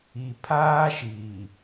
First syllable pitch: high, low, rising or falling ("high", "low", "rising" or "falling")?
low